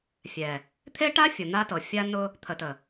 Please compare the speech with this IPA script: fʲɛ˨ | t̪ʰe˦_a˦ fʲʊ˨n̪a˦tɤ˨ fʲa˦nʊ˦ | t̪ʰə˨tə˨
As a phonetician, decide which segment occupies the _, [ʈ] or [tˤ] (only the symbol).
ʈ